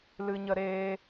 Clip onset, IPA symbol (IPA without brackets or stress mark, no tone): l